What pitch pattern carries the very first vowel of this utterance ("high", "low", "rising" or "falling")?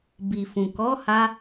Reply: low